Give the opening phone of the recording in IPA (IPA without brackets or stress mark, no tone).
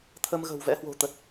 t̪ʰ